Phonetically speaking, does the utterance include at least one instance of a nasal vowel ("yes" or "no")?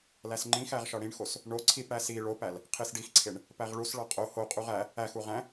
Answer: yes